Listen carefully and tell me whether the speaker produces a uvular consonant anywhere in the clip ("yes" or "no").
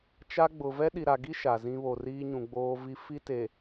no